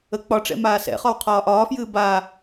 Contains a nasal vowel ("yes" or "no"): no